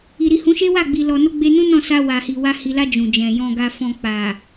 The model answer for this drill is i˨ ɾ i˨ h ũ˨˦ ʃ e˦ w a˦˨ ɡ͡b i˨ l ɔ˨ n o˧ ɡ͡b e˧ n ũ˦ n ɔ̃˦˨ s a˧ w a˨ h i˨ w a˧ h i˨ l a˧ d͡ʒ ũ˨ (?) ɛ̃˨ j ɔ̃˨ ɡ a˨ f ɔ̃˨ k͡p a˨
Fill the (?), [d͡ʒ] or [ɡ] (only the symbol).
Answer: d͡ʒ